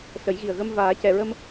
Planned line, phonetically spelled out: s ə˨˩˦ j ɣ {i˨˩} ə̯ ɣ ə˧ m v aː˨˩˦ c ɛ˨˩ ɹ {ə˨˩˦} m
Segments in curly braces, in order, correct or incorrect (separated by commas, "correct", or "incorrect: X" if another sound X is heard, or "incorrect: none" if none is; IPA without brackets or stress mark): correct, incorrect: ə˧